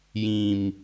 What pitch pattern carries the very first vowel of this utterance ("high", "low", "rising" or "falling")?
low